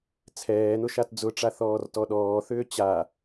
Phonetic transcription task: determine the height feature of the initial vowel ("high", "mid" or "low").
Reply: mid